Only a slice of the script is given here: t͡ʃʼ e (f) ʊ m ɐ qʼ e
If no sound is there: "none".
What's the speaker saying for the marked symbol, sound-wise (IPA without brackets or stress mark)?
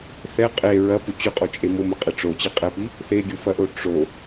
m